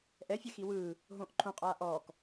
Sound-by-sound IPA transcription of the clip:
ʔ ɛ fʲ ɛ x i w ɯː | ɦ õː ʔ ǃʰ õ qʼ aː ʔ ɔː k

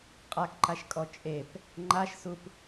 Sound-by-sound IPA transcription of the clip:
qʼ a k ǃ a ʃ kʼ ɔ t͡ʃʼ e p | ŋ͡ǃ a ʃ s u p

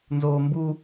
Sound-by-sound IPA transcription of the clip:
n z oː m b u

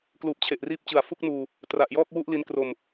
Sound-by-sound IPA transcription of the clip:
k l uː˨˩ p̚ t͡ɕʰ e˨˩ ʔ r iː˥˩ p̚ t͡ɕ ɯ˨˩ a̯ f u˥˩ k̚ n uː˧ | t r a˨˩ ʔ j ɔː˥˩ k̚ w u˥˩ ʔ l i˦˥ n k r o˧ m

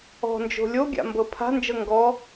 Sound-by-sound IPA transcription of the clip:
ɔ̤ n d͡ʒ o̤ lʲ o ɡʲ a̰ m b ɤ pʰ a̤ n d͡ʒ ɤ ŋ ɡ ɔ

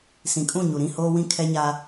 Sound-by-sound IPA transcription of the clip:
s ĩ˨ kʼ ũ˦˨ ɲ u˨ ɾ ĩ˦˨ h oː˦ w ĩ˦ kʰ ɛ˦ ɲ a˦

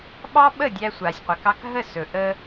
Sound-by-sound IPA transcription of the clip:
ɓ ɑ˥ ɓ ə˥˩ dʲ æ˧ sʷ a˩ sʲ qʷ ɛ˩ k ɑ˧ k ɦ ə˥˩ s ɵ˩ ʔ ə˧

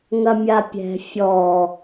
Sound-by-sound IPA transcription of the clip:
ŋ ɐ mʲ a pʲ ɛ̤ fʲ ɔ

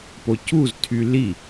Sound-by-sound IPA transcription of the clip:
p o c u z tʰ y l i

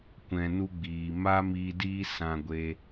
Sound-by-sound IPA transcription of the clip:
kʷ ɛ̃˧ n u˧ ɡ͡b iː˨ m a˦ m iː˧ d iː˦ s ã˧ ɡʷ e˧

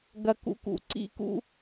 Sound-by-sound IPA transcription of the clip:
ɡ ɐ˧ k ṵ˧ k ṵ˨ ǀ ḭ˦˨ k ṵ˦

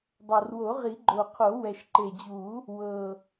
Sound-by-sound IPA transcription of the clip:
dˤ ɤ˨˩ r w o˨˩˦ ʁ i˨˩˦ ɡ͡ǃ o˨˩ qʰ o˨˩˦ w ɛ˨˩ ʃ ǃ e˨˩ d͡ʑ u˨˩˦ | w ɤ˨˩

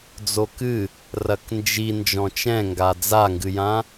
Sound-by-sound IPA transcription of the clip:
d͡z o k ɨ | r ɐ k n d͡ʒ i n d͡ʒ ɔ̃ t͡ʃ ɛ̃ ŋ ɡ a d͡z a ŋ ɡ ɨ j ã

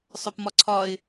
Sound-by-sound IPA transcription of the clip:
sˤ œ p m ɒ ǀʰ ɒ ɪ̯

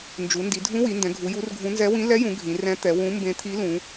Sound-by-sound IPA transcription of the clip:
n d͡ʒ u˩˧ n d i˩˧ dʱ ũ˧˥ w i˩˧ n d ɛ̃˩˧ ɡʱ u˩˧ j u˧˥ r ɡʱ ũ˧˥ n z ɛ˧˥ w ĩ˧˥ l ɛ˧˥ j ũ˩˧ ɡʱ ĩ˩˧ r ɛ̃˧˥ t̪ ɛ˩˧ w ũ˧˥ m b ẽ˧˥ t̪ʰ i˧˥ l ũ˩˧

